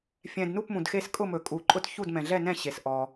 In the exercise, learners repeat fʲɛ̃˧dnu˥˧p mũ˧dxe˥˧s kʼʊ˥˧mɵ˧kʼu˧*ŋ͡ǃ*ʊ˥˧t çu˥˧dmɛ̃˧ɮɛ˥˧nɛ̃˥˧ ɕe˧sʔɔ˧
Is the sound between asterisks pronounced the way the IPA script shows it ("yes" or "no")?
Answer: no